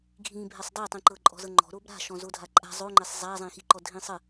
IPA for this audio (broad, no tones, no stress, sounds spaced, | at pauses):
ɡʱ ĩ bʱ ɛ sˤ dˤ ɛ tˤ ĩ ǃ ɤ ǃʼ ɔ̤ z ɤ ŋ͡ǃ ɔ̤ ɾ o b ɾ a̤ ʃ ɔ̃ z o dʱ a ǃʼ a̤ zˤ o ŋ͡ǃ ɛ sˤ zˤ a zˤ ĩ x i ǃ ɔ dʱ ĩ sˤ ə